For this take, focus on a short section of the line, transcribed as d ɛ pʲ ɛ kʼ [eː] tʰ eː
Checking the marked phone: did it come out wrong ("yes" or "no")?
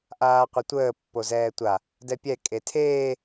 yes